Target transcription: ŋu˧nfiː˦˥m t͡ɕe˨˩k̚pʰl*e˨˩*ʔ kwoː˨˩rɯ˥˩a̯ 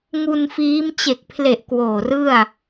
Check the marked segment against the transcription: correct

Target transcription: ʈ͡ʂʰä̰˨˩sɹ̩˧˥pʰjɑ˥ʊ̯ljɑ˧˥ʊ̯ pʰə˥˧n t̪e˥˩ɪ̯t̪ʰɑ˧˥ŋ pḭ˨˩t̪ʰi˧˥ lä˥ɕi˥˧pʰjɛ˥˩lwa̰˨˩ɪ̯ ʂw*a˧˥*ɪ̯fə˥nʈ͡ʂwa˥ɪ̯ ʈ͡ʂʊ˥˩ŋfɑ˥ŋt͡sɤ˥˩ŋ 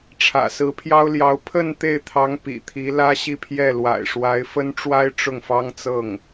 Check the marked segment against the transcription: correct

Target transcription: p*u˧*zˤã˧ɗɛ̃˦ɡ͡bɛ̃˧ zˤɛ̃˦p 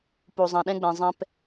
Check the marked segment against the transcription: correct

